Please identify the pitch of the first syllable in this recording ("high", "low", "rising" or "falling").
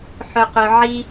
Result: high